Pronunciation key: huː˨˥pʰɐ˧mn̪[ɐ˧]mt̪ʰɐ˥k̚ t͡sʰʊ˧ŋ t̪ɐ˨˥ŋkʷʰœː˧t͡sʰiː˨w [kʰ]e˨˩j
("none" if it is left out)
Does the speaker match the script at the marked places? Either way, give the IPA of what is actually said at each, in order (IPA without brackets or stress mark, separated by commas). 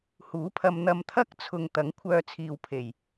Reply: ɐ˧, pʰ